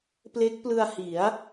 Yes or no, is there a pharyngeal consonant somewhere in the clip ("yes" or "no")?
no